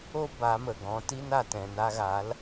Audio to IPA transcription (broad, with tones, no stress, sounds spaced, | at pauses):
o˦ b a˨˦ m ə˨ ɡ ɔ̃˨˦ t i˦ n a˨ t ɛ̃˨ n a˧ ɣ a˨˦ l